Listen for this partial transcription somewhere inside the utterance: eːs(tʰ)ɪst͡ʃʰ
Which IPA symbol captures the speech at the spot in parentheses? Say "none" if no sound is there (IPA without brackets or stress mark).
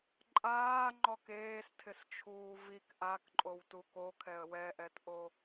tʰ